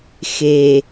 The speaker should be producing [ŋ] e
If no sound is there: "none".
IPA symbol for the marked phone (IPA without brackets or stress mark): x